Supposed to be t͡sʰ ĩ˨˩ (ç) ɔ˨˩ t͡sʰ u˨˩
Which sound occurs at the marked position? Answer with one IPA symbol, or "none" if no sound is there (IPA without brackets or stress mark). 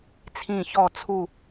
ç